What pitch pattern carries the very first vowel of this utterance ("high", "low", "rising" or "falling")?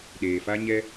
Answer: low